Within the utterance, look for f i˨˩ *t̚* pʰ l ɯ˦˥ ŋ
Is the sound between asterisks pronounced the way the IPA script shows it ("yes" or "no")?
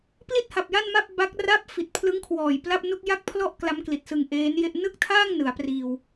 yes